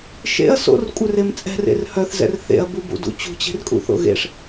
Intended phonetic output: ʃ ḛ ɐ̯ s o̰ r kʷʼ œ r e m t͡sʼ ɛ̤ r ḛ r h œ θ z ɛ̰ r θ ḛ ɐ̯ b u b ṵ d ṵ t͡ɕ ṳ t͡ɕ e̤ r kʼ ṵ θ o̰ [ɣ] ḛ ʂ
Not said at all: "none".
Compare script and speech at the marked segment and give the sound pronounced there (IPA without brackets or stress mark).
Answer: ɣ